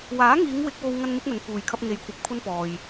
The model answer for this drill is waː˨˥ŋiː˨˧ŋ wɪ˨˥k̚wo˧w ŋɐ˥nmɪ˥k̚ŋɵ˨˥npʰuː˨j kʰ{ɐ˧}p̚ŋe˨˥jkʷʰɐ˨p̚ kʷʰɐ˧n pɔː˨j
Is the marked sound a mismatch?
no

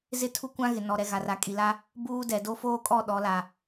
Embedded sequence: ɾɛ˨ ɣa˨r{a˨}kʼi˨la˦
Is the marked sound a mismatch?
no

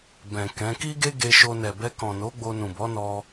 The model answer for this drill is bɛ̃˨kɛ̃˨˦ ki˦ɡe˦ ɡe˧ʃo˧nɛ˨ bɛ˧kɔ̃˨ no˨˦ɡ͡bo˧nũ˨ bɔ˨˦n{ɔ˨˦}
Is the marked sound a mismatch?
yes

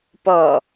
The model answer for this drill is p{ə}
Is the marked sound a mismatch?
yes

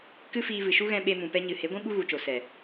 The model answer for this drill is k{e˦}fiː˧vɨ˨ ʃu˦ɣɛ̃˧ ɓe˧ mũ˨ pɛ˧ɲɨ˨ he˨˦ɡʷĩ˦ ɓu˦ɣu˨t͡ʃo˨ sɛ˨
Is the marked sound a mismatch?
yes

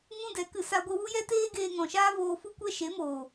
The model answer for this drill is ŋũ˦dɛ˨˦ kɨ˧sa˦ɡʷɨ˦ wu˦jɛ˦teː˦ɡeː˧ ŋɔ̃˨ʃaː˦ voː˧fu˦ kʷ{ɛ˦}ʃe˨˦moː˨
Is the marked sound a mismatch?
no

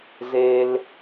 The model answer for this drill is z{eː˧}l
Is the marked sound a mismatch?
yes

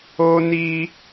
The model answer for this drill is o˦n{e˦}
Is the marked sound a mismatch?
yes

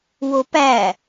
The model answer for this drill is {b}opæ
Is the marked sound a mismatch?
yes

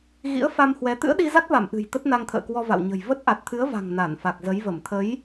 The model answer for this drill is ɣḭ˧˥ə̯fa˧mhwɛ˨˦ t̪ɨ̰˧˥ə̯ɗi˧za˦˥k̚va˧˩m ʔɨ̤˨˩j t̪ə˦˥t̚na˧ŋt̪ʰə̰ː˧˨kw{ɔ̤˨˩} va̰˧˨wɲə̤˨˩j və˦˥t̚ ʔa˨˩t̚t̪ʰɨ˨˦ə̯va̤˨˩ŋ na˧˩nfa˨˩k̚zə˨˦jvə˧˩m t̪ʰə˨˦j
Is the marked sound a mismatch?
yes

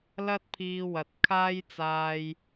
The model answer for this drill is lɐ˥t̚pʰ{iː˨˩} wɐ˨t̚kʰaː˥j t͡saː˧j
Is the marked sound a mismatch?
yes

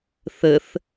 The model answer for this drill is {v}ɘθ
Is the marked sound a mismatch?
yes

